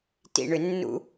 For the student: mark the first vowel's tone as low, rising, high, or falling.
low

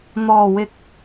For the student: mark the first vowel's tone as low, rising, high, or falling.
low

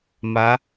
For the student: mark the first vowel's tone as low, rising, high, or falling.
rising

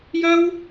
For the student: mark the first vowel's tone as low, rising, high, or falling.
high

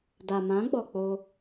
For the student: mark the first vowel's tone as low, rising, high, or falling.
low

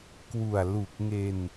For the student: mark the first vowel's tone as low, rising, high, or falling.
low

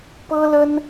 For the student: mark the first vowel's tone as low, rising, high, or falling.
high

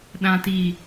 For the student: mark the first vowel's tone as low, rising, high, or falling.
low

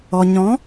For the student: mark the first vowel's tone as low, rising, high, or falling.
low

